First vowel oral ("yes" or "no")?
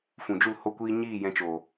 no